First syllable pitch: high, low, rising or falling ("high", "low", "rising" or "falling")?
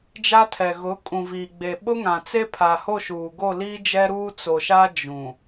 high